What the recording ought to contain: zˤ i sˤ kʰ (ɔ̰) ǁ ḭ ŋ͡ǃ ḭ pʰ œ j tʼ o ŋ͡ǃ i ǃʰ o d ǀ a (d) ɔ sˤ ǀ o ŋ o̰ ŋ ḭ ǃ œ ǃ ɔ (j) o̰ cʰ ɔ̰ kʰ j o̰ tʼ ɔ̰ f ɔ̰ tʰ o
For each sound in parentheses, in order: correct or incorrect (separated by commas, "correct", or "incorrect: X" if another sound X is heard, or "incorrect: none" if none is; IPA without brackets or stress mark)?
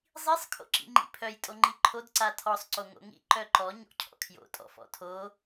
incorrect: o̰, incorrect: tʰ, incorrect: ɲ